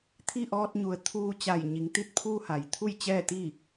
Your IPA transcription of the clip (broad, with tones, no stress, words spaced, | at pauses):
t̪ʰi˥˨ ʔɔː˧t̚ɲu˩˧ə̯t̪ʰuː˧ t͡ɕa˧˩jɲi˩˧ŋt̪i˥˨t̚ pʰuː˧ha˩j t̪ʰu˥˨jt͡ɕɛː˥˨t̪i˥˨